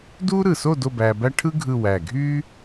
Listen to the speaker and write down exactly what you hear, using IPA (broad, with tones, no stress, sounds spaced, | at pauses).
d uː˥ ɾ ɯ˧˩ s o˥˧ d o˥˧ b æː˧ b æ˥ ʈʰ ɯ˥ ɡʱ ɯ˥˧ w æ˧˩ ɡʱ yː˥